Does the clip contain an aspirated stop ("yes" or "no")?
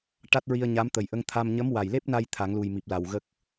yes